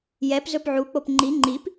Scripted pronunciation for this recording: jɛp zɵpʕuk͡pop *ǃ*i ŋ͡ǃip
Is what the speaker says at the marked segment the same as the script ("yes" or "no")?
no